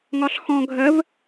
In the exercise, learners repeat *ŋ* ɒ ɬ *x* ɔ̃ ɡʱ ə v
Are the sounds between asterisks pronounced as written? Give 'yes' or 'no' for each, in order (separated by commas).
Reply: yes, yes